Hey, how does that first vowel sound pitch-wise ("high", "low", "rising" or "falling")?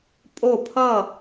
falling